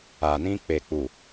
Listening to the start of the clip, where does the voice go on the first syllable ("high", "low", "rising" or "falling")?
low